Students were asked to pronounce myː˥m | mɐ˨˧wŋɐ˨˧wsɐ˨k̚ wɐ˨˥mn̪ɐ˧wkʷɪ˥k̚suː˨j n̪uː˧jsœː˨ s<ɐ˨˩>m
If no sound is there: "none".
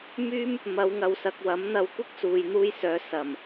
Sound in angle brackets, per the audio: ɐ˨˩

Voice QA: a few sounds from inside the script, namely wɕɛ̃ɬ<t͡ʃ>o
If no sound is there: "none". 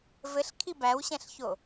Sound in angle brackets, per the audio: ç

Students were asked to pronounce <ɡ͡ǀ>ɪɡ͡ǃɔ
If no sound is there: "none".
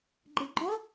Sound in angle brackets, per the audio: ɡ͡ǃ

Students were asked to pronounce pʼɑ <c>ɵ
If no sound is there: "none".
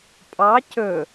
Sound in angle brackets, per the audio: c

